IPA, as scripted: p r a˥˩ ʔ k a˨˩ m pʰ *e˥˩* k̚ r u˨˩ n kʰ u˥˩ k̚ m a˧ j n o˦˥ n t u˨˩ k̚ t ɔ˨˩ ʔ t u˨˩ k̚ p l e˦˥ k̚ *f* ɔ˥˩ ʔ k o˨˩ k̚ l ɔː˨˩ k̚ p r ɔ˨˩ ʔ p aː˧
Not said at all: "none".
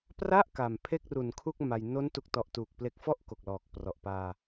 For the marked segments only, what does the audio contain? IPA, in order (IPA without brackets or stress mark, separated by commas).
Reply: e˥˩, f